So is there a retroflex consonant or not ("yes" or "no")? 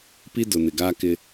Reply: no